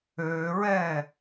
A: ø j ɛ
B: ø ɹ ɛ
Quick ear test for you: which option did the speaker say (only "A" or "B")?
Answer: B